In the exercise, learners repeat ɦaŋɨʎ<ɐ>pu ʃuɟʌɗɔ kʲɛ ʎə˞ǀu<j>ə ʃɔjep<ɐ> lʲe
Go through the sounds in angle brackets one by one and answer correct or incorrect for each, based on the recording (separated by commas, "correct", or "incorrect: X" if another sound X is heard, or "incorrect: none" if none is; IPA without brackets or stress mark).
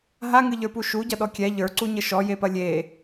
incorrect: ə˞, incorrect: ɲ, correct